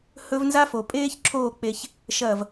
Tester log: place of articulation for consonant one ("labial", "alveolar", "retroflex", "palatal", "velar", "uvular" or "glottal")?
glottal